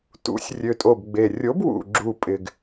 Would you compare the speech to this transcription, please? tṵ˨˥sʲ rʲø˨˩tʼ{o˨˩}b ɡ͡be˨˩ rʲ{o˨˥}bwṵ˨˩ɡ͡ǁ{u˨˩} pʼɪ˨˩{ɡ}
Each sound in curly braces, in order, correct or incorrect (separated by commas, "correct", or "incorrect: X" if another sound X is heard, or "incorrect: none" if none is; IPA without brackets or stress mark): correct, correct, correct, correct